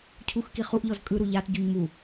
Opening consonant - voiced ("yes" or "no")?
no